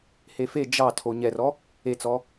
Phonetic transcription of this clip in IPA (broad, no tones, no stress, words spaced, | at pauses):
hefe d͡ʒɑtʰo ɲɛrɔ | et͡sɔ